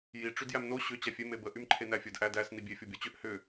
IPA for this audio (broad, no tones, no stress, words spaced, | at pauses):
ji ʈ͡ʂydjæmno ɕʏ t͡ɕæfʲe mebə ʔymǃʰenæfʲəd ʔædæs nibʲe fʲobʲot͡ɕʏʔ hʏ